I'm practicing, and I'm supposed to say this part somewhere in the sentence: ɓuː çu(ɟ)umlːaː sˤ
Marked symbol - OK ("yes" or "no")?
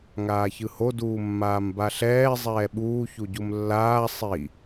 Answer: yes